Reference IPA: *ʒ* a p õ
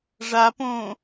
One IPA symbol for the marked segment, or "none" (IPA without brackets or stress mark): ʐ